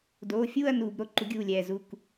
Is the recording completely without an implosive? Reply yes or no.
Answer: yes